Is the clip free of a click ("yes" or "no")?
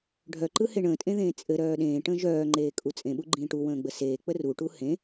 no